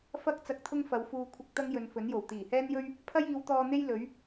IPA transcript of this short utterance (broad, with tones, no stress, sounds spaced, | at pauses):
f ɐ˥ k̚ t͡s ɐ˧ k̚ t̪ʰ ʊ˥ ŋ f ɐ˨˧ w f uː˧ kʷʰ ɪ˧ k̚ t̪ ɐ˥ ŋ j ɵ˨˧ n f ɵ˨˥ n j o˨˩ w t̪ iː˨˩ h ɛː˥ n j ɵ˥ ɥ | pʰ ɐ˥ j iː˨˧ w t̪ ɔː˧ n̪ e˥ j l ɵ˨˥ ɥ